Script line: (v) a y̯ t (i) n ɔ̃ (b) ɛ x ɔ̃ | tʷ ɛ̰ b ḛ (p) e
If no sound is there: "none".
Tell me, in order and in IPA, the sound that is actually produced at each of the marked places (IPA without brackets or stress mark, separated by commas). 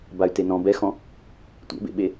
b, e, b, ɓ